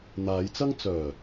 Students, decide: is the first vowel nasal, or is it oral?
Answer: oral